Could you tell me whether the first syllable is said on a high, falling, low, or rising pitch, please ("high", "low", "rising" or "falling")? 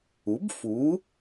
rising